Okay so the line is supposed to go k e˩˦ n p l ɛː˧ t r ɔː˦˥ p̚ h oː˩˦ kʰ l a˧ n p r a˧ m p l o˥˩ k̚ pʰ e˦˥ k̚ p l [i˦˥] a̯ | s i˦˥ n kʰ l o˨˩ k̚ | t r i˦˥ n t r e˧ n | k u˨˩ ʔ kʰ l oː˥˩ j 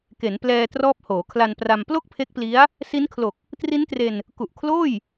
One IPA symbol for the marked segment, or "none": i˦˥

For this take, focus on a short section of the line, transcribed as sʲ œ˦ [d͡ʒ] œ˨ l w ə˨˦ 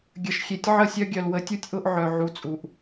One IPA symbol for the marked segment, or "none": ɡʲ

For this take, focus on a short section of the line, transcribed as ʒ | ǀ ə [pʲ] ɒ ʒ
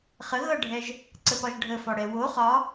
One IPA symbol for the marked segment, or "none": p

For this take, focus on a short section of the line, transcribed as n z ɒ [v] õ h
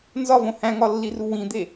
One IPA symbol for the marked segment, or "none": v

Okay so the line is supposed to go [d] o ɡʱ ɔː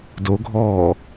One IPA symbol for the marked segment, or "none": d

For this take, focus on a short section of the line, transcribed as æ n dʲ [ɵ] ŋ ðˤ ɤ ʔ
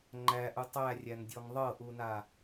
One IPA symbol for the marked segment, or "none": ɔ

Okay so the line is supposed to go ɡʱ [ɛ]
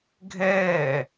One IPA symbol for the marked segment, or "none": ɛː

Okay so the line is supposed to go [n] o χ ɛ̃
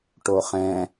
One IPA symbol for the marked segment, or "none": ʈ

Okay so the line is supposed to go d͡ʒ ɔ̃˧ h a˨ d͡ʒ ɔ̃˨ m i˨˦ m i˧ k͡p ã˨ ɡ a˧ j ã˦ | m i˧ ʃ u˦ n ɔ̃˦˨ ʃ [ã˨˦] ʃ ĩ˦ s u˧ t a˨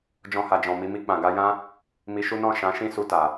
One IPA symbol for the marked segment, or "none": ã˨˦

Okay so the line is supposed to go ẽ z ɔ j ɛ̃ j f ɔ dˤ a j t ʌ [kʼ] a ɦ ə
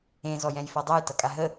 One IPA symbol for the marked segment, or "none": kʼ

